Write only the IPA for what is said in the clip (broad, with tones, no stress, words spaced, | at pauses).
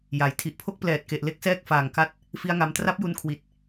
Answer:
ja˩˦j tʰi˨˩ʔpʰo˦˥k̚plɛː˨˩t̚ ke˨˩ʔle˦˥k̚sɛː˥˩k̚ faː˨˩ŋka˥˩t̚ | fi˦˥a̯ŋa˧m tra˦˥p̚ju˧nkʰwi˨˩t̚